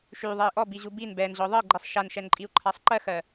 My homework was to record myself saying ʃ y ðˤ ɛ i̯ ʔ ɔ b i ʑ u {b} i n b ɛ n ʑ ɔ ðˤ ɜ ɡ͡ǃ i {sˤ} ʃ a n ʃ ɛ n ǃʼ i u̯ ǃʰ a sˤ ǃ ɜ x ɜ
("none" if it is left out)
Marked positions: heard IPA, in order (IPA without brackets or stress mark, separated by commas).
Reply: b, sˤ